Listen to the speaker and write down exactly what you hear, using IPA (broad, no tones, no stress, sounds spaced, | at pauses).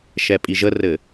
ʃ ɛ pʼ i ʒ ə r ɘ